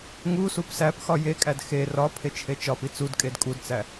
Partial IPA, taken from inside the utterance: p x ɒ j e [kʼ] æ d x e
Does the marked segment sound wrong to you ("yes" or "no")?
no